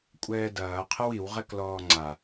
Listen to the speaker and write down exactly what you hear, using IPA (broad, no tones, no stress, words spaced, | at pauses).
kʷʼɛːdɐː qʰəwiw ʁɛklɔːŋ͡ǀa